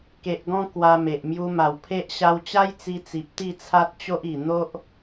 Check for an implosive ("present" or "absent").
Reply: absent